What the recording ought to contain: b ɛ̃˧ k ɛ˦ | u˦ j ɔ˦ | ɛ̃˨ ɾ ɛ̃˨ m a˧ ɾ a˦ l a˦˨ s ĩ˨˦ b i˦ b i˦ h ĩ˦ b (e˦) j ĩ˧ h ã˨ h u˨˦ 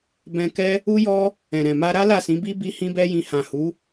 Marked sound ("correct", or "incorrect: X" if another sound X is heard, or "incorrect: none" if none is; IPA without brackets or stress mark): incorrect: ɛ˦